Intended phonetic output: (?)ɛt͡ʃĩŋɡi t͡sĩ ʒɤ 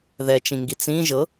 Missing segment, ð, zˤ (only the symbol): ð